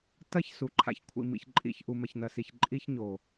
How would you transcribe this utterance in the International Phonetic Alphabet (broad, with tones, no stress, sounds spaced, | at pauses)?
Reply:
t ɐ˦ ç s u˨ ǃʰ a̰˨ ç kʷʰ ḭ˨ m ḭ˨ ç ǃʼ ḭ˨ ç ʔ u˨ m ɐ˨ ç n ɐ˨ s i˨ ç ǃʼ i˦ ç ɲ o˨